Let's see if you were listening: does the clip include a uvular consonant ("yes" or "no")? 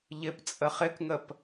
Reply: yes